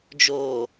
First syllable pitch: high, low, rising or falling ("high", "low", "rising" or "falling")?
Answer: low